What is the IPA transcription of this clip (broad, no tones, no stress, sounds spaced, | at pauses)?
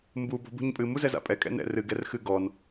m b u b ɔ̤ b ṳ ɲ pʼ ɨ m u z ɛ z a̰ pʼ ɛ kʼ ɛ̰ n ɛ̰ r ɨ ɡ ɛ r x ɨ ɡ ɔ n